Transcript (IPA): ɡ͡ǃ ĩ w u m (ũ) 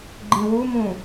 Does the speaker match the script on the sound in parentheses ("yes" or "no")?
yes